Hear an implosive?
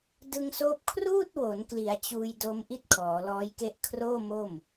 no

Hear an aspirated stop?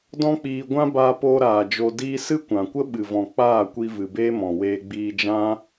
no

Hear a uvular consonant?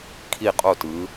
yes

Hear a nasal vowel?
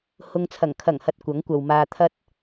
no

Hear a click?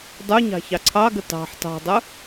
yes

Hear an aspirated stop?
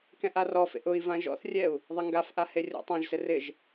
no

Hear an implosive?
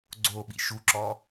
yes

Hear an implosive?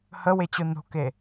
no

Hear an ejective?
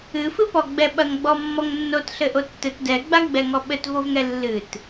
no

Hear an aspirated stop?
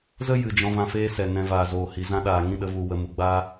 no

